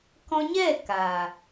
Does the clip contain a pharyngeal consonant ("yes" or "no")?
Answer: no